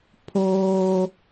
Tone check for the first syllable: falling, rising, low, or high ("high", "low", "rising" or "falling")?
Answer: high